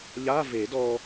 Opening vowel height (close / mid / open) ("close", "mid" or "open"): open